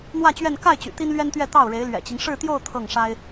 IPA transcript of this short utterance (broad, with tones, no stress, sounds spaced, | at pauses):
n̪ w ä˥˧ t͡ɕ ɥ ɛ˥˧ n k a˥˩ ɪ̯ t͡ɕ y̰˨˩ t̪ i˥ n l ɥ ɛ˥ n t̪ ɥ ɛ˥˧ t̪ ɑ˥˩ ʊ̯ ɻ e˧˥ ɪ̯ l ɥ ɛ̰˨˩ t͡ɕ i˦ ŋ ʂ ɻ̩˥˧ t̪ j o˥˧ ʊ̯ t̪ʰ ɤ˥˩ ŋ ʂ a˥ ɪ̯